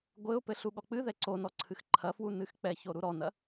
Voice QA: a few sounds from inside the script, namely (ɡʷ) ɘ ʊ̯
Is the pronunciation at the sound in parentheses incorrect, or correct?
correct